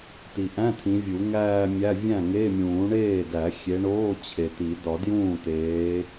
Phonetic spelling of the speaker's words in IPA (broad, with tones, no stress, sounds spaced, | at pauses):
t̪ i˨ ʔ æ̃˧˥˧ tʰ ĩ˨˦ vʲ u˨˩˦ ŋ æː˥˧ mʲ æ˧˥˧ vʲ æ̃˥˩ ŋ e˧˥˧ mʲ ũː˨˩˦ ɳ eː˥˩ d æ˨˩˦ xʲ e˨˦ ɳ oː˧˥˧ t͡ɕʰ e˨ t̪ i˨˩˦ d ɒ˨˩˦ d j ũː˥˩ t̪ eː˨˦